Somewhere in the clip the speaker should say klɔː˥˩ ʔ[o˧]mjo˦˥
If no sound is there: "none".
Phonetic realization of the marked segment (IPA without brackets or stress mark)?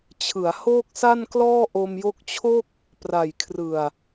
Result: o˧